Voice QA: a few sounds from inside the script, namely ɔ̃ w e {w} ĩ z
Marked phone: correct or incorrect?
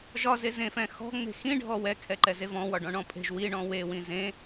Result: correct